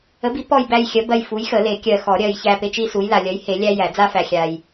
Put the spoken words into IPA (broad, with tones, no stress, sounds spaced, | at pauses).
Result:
ə˨˥ b i˨˥ p ɔ˦˨ j b æ˦˨ j xʲ ɜ˨˥ b ɜ˦˨ j f u˨˥ j x ə˨˩˦ l e˨˩˦ kʲ ɜ˨ x ɔ˨˩˦ ɾʲ ɜ˨ j ç æ˦˨ p e˥ t͡ʃ i˥ s u˨˥ j l a˨ lʲ ɜ˨˥ j h e˨˩˦ lʲ æ˥ j æ˨˩˦ d͡z a˥ f æ˨ xʲ a˨ j